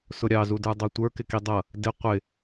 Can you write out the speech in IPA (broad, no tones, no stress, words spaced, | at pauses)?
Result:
sʊɾʲɑzudə˞ dˤɑtʷə˞ kɪkidˤʌ | dɪ qʷɪ